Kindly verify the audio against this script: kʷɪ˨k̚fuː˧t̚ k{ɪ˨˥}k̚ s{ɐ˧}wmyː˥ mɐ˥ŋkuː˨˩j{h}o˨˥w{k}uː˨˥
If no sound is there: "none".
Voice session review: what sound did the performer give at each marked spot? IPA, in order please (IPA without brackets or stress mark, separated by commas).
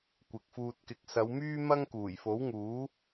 ɪ˨˥, ɐ˨˧, f, ŋ